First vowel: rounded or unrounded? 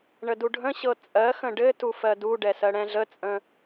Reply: unrounded